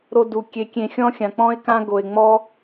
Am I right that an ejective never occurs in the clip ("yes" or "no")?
yes